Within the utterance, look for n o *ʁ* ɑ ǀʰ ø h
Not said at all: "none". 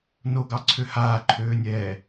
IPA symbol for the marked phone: ɡ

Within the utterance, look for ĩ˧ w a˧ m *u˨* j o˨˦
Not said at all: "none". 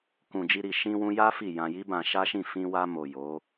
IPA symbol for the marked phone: o˨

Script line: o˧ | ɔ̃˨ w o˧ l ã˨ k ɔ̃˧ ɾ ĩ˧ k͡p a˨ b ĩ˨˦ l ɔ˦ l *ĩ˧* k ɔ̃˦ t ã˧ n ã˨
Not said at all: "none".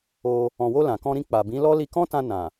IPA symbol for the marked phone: i˧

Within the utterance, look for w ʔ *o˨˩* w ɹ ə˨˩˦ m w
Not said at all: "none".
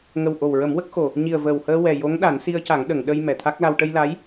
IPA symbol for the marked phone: o˨˩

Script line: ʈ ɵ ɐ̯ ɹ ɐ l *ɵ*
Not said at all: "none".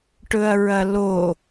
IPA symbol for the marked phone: o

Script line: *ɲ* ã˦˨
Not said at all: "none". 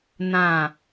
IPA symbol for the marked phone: n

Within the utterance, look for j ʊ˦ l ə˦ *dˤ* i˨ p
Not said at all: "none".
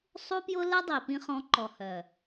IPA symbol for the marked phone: dˤ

